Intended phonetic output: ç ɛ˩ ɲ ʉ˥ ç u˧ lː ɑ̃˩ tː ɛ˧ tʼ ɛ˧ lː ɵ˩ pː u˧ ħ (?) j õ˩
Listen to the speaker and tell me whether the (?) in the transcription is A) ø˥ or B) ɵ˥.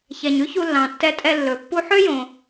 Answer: A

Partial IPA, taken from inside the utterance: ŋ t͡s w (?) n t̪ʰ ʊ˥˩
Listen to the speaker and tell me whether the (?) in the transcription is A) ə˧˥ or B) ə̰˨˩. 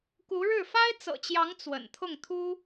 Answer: B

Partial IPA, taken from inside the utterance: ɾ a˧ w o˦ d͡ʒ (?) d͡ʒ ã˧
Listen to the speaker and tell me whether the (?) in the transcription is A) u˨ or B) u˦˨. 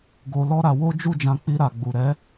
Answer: B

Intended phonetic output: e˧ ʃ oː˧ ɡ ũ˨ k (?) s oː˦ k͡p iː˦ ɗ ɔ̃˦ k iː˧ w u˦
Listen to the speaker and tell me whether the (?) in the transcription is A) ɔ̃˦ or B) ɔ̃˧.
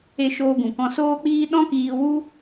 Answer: B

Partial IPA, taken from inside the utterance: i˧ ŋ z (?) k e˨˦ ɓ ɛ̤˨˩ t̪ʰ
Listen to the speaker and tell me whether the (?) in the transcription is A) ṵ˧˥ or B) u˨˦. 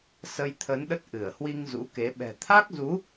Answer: A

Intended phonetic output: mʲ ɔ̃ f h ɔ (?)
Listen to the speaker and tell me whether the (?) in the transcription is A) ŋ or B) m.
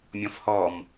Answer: B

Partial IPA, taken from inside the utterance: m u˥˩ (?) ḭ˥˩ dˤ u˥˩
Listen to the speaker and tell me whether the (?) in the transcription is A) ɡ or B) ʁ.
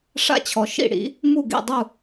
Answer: A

